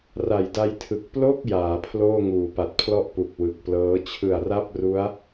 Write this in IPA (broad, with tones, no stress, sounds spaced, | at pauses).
r a˨˩ j d a˧ j tʰ ɯ˨˩ k̚ p l o˥˩ k̚ j aː˩˦ pʰ l oː˥˩ ŋ uː˩˦ p a˨˩ t̚ pʰ l ɔ˥˩ ʔ p u˨˩ k̚ w ɯ˨˩ k̚ p l ɤː˦˥ t͡ɕʰ ɯ˨˩ a̯ r a˥˩ p̚ r u˦˥ a̯